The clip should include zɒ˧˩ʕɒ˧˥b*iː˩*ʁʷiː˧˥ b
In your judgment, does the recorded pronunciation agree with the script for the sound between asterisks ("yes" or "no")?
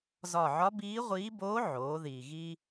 no